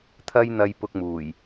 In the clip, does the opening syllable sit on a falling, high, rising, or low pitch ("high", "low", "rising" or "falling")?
high